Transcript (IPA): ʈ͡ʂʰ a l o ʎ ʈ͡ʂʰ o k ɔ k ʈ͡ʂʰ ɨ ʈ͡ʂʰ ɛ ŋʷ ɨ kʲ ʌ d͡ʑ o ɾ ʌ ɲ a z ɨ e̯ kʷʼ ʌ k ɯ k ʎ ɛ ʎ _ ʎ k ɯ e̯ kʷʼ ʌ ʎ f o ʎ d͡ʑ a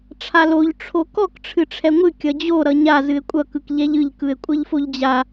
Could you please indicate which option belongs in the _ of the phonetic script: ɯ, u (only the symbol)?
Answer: ɯ